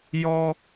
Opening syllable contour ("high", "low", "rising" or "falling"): high